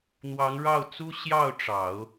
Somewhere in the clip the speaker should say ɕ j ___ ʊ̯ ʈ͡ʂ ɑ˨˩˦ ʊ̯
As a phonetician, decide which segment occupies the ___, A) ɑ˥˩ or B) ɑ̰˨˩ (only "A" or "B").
A